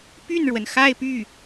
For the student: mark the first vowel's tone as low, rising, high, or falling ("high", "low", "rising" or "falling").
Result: falling